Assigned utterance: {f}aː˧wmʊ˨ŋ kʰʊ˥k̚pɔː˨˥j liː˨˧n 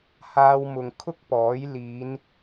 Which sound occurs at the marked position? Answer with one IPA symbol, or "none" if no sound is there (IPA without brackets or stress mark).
h